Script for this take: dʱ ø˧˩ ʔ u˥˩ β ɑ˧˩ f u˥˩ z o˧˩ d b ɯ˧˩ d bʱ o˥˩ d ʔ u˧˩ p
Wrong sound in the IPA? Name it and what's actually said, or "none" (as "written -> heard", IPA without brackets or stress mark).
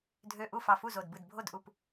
β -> f